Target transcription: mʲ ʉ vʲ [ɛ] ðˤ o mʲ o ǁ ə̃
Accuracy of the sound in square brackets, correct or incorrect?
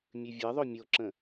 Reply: correct